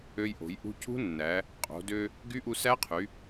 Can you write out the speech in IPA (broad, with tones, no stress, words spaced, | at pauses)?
ø˧jʔo̤˩˧j ʔṳ˧cṳ˦˥nːæ˩˧ | qʼo̤˩˧ dø˧ | ɡy˦˥ʔu˧ sæ˦˥qʰy˩˧